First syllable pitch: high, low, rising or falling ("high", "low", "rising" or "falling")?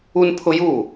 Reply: high